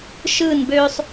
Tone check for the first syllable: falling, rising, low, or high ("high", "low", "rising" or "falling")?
falling